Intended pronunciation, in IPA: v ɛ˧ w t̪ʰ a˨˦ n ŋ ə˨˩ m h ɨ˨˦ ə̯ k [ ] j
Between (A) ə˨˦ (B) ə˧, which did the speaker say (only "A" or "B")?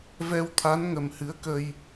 B